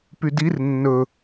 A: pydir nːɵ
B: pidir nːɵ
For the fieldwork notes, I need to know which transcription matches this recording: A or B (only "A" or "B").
A